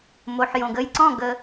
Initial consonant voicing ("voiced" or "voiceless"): voiced